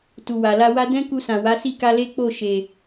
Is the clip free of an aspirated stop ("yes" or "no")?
yes